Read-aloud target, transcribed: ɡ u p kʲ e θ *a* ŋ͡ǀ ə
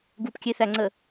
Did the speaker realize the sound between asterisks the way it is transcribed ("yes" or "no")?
no